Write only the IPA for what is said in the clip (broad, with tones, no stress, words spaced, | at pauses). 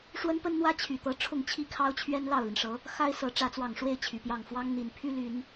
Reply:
ʂwə˥npə˥nn̪wä˥ t͡ɕʰy˨˩t̪ɤ˧˥ ʈ͡ʂʰʊ˥˩ŋt͡ɕʰi˥kʰɑ˥ʊ̯t͡ɕʰɥɛ˥n lɑ˥˩ʊ̯li˩nʂɤ˧˥ | xa˥ɪ̯sɤ˧˥ ʈ͡ʂä˧˥t͡swɑ˨˩ŋʂwe˥˩ɪ̯ t͡ɕʰy˨˩pjɑ˥˩ŋ fwɑ˥ŋ n̪i˨˩npʰy˥ly˨˩˦n